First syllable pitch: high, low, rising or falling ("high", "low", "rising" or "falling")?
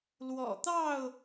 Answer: low